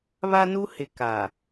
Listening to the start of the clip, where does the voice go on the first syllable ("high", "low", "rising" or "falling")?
high